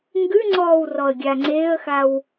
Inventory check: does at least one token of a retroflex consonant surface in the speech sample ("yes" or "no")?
no